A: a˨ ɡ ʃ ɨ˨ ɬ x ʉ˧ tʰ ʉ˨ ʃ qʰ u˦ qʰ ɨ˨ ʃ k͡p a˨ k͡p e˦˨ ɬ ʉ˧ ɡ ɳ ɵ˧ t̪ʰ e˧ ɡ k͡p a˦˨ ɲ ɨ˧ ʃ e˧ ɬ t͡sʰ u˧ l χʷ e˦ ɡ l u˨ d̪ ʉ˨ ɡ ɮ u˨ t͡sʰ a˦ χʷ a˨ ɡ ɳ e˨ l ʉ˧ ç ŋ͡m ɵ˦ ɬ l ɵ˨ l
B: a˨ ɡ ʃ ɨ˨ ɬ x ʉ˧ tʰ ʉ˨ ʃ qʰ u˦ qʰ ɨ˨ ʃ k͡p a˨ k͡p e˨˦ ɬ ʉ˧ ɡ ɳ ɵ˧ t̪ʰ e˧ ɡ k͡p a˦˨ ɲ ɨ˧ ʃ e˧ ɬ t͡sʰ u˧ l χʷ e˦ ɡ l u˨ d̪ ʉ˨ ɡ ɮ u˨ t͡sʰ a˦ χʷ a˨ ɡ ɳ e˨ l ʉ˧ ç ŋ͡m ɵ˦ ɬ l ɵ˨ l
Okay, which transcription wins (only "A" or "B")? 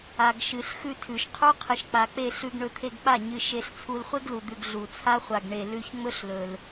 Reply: A